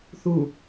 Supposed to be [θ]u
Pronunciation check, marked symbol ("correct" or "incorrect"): correct